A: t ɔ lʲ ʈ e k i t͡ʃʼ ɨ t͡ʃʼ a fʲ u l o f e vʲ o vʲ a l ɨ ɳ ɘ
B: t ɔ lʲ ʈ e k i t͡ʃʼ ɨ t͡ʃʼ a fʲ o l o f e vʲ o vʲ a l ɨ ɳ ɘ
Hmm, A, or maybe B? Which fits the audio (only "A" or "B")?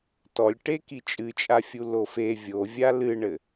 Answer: A